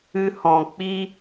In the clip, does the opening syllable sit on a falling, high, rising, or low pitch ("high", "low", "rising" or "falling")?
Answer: high